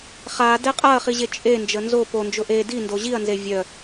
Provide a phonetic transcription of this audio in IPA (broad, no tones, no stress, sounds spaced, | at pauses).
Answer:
χ a d ɛ qʼ a ɐ̯ χ i ʑ e t͡ʃʼ e n d͡ʒ ə n z o p o n d͡ʒ ʊ ʔ e d i n d o ʑ i ɐ̯ n z e vʲ œ